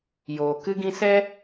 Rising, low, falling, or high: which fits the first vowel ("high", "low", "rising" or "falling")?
low